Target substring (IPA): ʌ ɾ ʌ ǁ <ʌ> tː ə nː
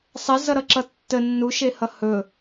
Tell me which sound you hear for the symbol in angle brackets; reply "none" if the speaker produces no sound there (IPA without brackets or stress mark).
ʌ